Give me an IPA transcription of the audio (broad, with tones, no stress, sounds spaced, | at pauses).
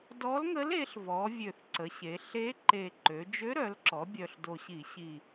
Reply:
d ɔ˧˥ l ŋ ə˧˥ l e˩˧ ɬ v ɔ˩˧ vʲ ø˨˩ θ ǀ ə˩˧ ɕ e˩˧ ɬ e˧˥ ǃ e˨˩ ǃ ø˩˧ d͡ʒ ø˧˥ ɾ œ˩˧ l ǁ ɔ˩˧ bʲ œ˨˩ ɬ d o˨˩ ɕ i˧˩˧ ɕ i˨˩